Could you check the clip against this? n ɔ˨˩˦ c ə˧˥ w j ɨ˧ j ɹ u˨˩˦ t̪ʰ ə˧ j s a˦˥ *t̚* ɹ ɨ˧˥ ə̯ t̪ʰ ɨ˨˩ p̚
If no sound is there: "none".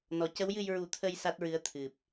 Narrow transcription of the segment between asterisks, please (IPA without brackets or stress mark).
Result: t̚